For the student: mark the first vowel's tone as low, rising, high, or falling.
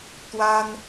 high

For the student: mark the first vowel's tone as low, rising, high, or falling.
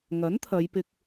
rising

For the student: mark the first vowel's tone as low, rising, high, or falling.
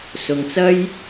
low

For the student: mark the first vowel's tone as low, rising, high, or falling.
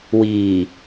low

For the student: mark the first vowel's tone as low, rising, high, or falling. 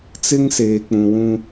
high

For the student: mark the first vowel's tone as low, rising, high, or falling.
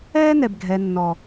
high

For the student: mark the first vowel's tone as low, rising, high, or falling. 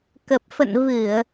low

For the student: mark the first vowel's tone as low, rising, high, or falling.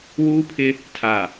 high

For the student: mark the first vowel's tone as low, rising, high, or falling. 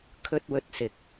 low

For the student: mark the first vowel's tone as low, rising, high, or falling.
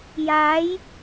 rising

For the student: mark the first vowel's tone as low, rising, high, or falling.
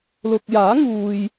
low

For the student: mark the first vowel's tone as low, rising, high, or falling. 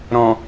low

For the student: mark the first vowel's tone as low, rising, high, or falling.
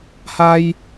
high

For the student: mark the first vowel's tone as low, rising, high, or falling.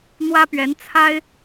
high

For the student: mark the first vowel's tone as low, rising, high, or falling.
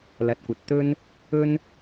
low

